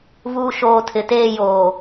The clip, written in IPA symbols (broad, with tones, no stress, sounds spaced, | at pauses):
v uː˨ ʃ oː˨ tʰ ɪ˨ t eː˦˨ j oː˨